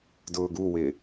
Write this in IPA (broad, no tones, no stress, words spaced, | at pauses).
dʊːɡuwɪː